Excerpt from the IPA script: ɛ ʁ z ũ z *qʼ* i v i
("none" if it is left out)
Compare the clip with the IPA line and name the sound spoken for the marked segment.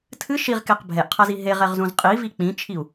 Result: qʼ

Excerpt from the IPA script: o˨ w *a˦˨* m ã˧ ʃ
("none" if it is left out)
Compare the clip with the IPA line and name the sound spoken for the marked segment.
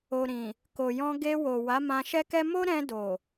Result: a˨˦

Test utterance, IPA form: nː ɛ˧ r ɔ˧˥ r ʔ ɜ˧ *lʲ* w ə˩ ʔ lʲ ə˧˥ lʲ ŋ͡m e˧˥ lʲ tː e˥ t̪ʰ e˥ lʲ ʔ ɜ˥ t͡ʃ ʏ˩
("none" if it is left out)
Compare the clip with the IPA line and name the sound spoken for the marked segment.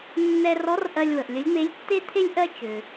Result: lʲ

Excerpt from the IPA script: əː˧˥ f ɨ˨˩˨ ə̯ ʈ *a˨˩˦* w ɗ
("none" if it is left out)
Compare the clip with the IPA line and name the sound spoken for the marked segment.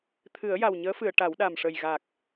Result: a˨˩˦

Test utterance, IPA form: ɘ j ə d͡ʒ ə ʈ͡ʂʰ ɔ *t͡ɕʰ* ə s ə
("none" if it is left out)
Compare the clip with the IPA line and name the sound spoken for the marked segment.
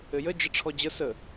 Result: d͡ʑ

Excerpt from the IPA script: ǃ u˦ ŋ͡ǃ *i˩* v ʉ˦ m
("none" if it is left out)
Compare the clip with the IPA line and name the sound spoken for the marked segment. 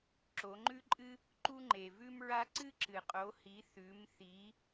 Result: e˩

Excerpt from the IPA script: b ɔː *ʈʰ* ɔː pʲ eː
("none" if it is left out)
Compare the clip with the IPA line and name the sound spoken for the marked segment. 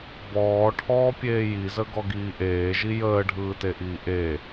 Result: ʈʰ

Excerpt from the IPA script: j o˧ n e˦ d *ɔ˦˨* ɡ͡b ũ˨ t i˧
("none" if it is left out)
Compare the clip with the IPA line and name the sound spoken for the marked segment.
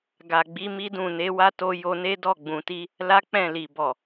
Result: ɔ˦˨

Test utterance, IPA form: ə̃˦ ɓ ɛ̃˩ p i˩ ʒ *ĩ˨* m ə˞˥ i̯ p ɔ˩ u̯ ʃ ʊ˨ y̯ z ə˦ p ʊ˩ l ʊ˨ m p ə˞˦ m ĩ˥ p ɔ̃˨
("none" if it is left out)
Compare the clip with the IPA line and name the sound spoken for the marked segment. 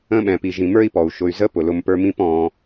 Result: ĩ˩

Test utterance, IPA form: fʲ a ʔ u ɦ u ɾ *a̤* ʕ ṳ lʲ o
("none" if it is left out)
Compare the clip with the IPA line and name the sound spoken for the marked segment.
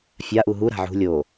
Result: a̤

